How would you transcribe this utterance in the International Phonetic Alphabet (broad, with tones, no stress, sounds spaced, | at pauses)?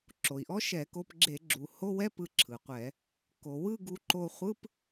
ǁ o˩ i̯ ʔ ɔ˦˥ ʃ ɛ˧˩˧ k o˧ p ɡ͡ǁ e˧˩˧ ɡ͡ǁ u˩ h o˧˥˧ w ɛ˧˥˧ p ɯ˧ ǁʰ ɯ˩ qʷ ɛ˧˩˧ | k o˩ w ɯ˥˧ ɡ u˧ ǃ o˧ χʷ ɯ˧˥˧ p